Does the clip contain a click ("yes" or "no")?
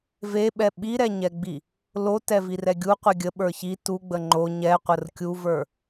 yes